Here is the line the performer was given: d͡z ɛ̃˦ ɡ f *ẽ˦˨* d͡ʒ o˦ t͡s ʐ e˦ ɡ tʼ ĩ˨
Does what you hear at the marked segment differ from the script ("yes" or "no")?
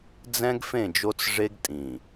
no